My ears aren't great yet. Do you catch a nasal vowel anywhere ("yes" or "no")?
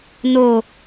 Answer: no